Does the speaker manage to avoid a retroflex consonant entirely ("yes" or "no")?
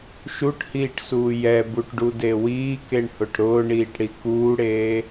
no